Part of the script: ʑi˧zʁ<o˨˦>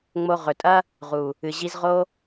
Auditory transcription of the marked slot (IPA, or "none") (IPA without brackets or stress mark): o˦